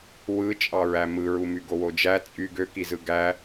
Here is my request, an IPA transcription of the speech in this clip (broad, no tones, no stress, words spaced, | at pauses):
wɯ t͡ʃʼɑɹæmɯɹu myɡowod͡ʒæ t͡sʼy ɡøkizɯ ɡæ